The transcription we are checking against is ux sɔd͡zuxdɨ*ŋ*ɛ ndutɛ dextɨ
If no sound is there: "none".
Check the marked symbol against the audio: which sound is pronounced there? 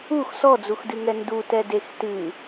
ŋ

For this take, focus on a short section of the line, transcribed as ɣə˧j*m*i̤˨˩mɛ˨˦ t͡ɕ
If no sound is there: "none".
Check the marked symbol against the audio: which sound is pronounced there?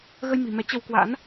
m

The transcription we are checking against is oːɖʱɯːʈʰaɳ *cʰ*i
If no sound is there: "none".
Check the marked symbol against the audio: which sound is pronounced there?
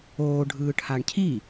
cʰ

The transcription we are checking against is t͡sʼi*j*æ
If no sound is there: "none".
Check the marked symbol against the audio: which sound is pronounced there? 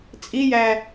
j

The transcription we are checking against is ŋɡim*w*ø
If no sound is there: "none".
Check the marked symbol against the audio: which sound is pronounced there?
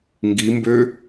b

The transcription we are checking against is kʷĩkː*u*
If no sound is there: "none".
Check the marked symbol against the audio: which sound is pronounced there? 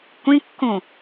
ũ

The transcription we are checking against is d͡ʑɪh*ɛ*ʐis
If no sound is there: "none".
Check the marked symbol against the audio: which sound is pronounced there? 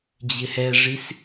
ɛ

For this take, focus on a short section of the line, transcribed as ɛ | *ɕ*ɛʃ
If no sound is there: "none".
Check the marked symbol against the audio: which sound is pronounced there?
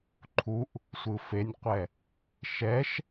ʃ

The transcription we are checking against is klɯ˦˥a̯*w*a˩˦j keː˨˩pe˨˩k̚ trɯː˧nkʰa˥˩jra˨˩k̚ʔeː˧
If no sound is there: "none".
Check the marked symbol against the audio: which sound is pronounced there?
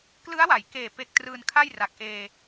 w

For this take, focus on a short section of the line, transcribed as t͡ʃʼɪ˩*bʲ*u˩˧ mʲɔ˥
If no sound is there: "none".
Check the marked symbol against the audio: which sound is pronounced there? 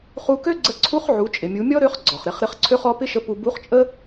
mʲ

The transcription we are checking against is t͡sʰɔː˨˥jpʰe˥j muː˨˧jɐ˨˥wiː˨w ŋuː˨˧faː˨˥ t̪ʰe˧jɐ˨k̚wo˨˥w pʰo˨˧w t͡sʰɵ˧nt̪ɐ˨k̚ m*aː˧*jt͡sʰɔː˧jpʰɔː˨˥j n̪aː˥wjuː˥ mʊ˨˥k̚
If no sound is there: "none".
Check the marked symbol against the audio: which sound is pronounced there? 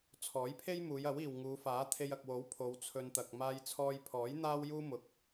aː˧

